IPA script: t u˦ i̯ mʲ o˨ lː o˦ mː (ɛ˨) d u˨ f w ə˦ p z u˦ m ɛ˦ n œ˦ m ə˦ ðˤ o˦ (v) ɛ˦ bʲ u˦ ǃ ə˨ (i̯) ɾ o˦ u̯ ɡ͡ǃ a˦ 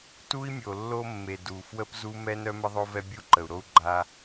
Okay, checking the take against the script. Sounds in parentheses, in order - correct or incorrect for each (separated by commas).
incorrect, correct, incorrect